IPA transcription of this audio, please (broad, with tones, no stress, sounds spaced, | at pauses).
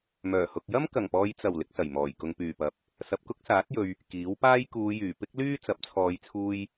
m œː˨˩ h ʊ˨ k̚ j ɐ˥ m k ɐ˨˩ ŋ p ɔː˨ j t͡s ɐ˨˩ w l ɪ˨˥ k̚ s ɐ˨˩ j m ɔː˨˩ j k ʊ˨ ŋ p yː˨˩ p ɐ˨˥ p̚ | s ɐ˨ p̚ k ʊ˥ k̚ s aː˨˥ t̚ j ɵ˨ ɥ | k iː˨˥ w p aː˥ j k uː˨˧ j yː˨˩ p ɪ˥ k̚ l yː˥ t͡s ɐ˨˥ p̚ t͡sʰ ɔː˨˧ j t͡sʰ uː˧ j